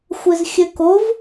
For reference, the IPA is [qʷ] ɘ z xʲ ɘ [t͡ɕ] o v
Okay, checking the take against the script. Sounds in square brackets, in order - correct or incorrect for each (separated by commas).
incorrect, incorrect